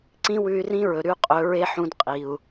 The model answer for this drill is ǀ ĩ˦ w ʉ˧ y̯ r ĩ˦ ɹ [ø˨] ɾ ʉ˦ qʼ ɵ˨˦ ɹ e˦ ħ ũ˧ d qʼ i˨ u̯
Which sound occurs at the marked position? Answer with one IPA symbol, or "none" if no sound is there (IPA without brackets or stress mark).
ɵ˨